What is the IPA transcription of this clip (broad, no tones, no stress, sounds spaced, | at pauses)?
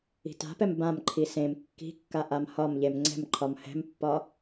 i̤ t a̤ p ɛ m b ã m ǃʰ i s ẽ m kː i̤ kː a ʔ a m h ɒ m ʎ e m ŋ͡ǀ ɛ̤ m ǃʰ ɒ m h ɛ̤ m pː ɒ